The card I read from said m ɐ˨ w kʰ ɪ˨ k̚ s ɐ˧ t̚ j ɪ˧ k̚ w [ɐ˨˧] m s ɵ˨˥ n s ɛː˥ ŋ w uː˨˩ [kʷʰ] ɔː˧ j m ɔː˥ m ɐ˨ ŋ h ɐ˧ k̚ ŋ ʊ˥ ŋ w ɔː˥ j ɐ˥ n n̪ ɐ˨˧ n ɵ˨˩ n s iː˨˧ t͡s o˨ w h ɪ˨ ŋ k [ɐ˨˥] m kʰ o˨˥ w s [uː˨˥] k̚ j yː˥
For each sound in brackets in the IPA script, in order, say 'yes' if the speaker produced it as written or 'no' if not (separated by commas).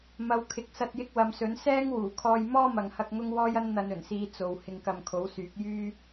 yes, no, no, no